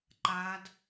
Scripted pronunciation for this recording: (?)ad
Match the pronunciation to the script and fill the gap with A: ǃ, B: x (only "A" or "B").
A